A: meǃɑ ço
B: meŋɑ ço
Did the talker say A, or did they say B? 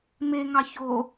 B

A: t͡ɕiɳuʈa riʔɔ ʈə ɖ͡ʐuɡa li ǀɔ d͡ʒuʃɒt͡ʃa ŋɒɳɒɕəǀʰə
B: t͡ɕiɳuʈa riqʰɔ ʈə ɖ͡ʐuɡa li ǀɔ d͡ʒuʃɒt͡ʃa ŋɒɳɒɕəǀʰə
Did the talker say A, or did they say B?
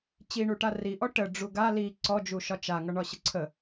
A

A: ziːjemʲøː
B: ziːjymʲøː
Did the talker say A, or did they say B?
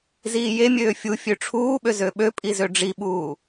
A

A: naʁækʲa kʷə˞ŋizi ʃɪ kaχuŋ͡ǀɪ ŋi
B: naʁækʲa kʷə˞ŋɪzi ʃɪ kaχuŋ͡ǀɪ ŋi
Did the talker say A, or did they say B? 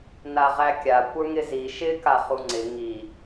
B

